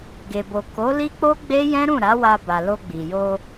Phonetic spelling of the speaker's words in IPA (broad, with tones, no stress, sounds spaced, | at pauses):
ɡ e˨ b o˨ k o˨˦ l i˦ k͡p o˦ ɡ͡b e˦ j ɛ̃˦ ɾ ũ˦˨ ɾ a˨˦ w a˧ b a˨ l o˧ ɡ͡b i˨ j o˧